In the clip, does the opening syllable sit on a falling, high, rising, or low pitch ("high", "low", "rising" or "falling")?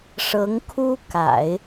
rising